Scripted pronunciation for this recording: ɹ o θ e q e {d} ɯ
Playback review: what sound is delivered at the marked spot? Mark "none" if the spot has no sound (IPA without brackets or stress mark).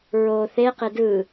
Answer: d